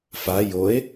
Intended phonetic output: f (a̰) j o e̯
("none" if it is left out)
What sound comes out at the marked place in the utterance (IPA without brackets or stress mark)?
a